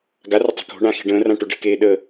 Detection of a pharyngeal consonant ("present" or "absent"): absent